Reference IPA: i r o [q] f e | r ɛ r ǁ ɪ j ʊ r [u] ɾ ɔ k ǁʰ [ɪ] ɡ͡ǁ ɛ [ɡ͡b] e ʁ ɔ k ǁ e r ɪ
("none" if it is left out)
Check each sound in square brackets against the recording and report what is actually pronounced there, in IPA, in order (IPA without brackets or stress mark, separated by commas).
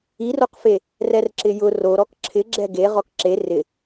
q, o, ɪ, ɡ